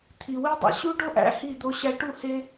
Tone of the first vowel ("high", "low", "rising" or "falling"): low